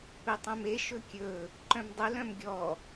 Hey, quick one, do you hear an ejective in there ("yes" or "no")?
no